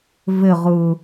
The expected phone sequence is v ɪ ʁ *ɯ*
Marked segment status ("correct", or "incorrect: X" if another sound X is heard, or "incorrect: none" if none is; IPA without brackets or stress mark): correct